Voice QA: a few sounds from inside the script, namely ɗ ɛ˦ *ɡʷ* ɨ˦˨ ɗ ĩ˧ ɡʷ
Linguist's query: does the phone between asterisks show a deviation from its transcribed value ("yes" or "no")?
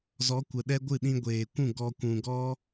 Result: no